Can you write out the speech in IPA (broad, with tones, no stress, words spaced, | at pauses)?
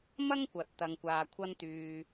mɐ˥ŋkʷɐ˨t̚ t̪ɐ˧ŋkʷaː˧kʷʰɐ˥n t̪yː˧